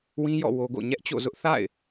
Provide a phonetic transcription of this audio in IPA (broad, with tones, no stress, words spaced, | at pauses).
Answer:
wĩ˦jɔ̰˦˨ wo˦ɡo̰˦˨ ɲɛ˦ʔt͡ɕo̰˦˨zʊ˦ʔ θa̰˦˨ɪ̯